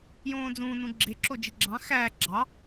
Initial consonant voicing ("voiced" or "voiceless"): voiced